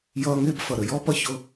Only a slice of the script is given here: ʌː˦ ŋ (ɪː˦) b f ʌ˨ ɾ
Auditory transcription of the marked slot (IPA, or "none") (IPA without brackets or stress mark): ɪː˦